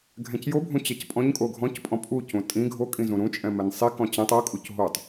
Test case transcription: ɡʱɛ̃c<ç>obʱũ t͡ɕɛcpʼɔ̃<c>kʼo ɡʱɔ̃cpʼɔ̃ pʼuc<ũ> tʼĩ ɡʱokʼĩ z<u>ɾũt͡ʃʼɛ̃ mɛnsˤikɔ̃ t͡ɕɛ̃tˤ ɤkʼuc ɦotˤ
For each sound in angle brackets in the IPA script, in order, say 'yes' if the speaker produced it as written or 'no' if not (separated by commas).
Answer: no, no, yes, no